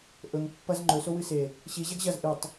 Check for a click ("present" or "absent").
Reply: present